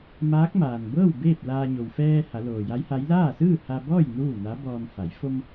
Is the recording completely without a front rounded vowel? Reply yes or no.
yes